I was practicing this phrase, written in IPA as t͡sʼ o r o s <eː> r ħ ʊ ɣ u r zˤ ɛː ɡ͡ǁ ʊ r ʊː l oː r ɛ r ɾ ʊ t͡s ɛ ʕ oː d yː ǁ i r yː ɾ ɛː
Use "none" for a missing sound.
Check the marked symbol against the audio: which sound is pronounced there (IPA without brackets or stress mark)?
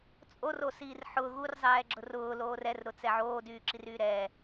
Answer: iː